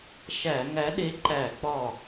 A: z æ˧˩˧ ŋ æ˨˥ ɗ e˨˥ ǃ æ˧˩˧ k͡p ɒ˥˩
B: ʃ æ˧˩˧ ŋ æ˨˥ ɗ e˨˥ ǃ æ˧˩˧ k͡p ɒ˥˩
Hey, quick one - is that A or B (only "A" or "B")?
B